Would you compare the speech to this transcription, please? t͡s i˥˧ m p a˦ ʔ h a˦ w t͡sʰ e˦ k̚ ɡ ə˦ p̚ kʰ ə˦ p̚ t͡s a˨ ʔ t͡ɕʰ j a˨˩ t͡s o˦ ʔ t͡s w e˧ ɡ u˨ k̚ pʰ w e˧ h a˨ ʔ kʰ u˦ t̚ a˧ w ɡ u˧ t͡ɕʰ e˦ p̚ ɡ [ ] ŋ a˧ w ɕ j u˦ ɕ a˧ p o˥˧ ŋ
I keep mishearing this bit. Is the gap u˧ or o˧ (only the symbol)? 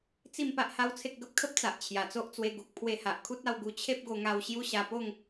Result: o˧